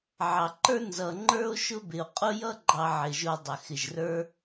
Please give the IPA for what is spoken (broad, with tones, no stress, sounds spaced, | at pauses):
ʕ ɑ˩ ǃ ə˞˥ n z ʌ˩ ŋ͡ǃ ə˞˦ o̯ ʃ ʊ˦ b ɪ˩ o̯ qʼ ʊ˥ j ʌ˥ ɡ͡ǃ ɑ˨ ʕ ɪ˩ ʒ ʊ˨ dˤ ɪ˩ x ɪ˩ ʒ r ə˞˦